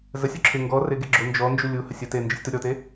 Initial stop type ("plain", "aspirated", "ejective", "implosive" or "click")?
click